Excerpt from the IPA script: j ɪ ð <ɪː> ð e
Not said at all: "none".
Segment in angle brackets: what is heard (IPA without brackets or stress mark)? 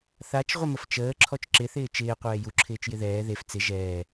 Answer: ɛː